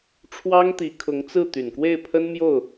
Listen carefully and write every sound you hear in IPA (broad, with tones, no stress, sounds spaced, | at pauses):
ʈ͡ʂʰ w ɑ˥ ŋ t̪ i˧˥ kʰ ʊ˧˥ ŋ t͡s ɹ̩˥˩ t̪ y˨˩ n k w e˥˩ ɪ̯ pʰ ə˥ n m j o˥˩ ʊ̯